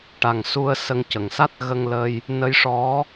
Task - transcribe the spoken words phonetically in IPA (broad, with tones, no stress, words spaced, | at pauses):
ʈa˨˩ŋsu˧ə̯ sə˧ŋcə˨˩ŋ sa˦˥t̚ ɣə˧ŋlə˧j | nə˧˥jʂɔ˧˥